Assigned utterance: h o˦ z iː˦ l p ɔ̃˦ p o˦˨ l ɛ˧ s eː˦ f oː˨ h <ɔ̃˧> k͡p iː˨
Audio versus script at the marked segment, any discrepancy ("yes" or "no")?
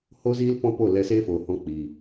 no